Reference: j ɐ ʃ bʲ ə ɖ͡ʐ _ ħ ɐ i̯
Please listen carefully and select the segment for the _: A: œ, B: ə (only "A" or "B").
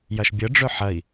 A